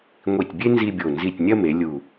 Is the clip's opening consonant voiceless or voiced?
voiced